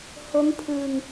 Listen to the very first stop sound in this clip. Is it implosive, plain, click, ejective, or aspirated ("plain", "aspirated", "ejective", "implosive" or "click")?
aspirated